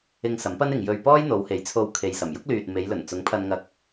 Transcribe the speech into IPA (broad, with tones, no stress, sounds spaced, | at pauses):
ɪ˧ ŋ s ɐ˨˥ m p ɐ˥ n ɪ˨ ŋ j ɵ˧ ɥ p ɔː˥ j n̪ o˨˧ w h e˨˥ j t͡sʰ o˧ w kʰ e˨ j s ɐ˨˩ m j ʊ˥ k̚ l yː˨ t̚ m e˨˧ j l ɵ˨˩ n t͡s ʊ˨˥ ŋ pʰ ɐ˧ n ŋ ɐ˧ k̚